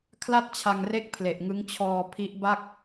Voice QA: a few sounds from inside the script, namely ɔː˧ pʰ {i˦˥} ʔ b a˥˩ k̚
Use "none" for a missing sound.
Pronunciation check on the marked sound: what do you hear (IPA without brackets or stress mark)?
i˦˥